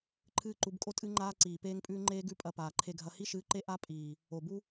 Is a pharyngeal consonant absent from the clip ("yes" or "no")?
yes